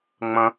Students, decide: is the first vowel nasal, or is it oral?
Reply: nasal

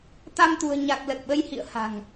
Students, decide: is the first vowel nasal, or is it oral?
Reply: oral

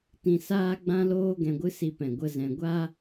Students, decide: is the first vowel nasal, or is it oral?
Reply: nasal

